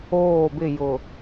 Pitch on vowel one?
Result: falling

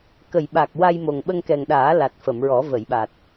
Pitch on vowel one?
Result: low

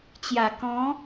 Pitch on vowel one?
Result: low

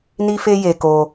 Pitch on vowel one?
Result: high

